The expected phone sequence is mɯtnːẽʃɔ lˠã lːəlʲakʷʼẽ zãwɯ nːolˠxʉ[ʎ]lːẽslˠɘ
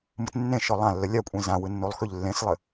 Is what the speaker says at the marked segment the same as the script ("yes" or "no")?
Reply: yes